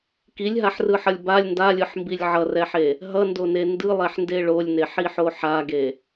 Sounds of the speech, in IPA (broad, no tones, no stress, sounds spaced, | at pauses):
k i lʲ ɦ a ħ r ɯ ħ ʌ lʲ b a lʲ n d a lʲ ɯ ħ m b i lʲ ʕ ʌ r ɛ ħ e | ɦ ʌ n d o n e n d ɯ lˠ ɛ ħ n d e ɭ o lʲ n e ħ i ħ o ħ a ɡ e